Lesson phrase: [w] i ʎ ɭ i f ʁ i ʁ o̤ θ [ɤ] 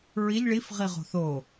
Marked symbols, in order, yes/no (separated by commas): no, no